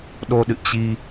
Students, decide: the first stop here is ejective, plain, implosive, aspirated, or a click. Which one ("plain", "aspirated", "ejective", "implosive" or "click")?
implosive